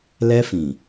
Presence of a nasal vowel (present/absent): present